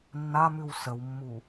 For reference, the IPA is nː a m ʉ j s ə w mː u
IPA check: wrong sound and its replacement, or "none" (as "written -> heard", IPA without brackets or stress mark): j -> w